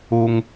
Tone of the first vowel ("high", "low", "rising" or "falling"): high